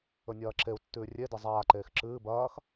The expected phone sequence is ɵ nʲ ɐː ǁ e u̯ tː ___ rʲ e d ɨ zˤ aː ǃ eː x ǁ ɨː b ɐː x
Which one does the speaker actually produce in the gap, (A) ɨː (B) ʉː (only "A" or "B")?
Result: B